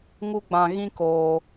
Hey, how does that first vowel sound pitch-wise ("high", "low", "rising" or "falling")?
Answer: high